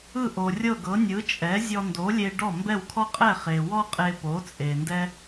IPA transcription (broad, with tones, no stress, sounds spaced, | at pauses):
ɯ˥˩ ʔ o˩ rʲ ɤ˥˩ ɡ ɤ˩˥ nʲ ɯ˩˥ t͡ʃʼ ɛ˩˥ zʲ ɔ˧ n d o˩˥ lʲ e˧ ɖ ɔ˥˩ m b ɛ˥˩ w kʰ ɔ˥ qʼ ɛ˥˩ χ e˩ w ɔ˥ qʼ e˧ p o˩˥ t͡sʼ e˩ n d ɛ˥